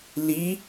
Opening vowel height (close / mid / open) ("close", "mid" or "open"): close